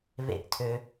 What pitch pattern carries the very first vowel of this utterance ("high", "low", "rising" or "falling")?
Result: falling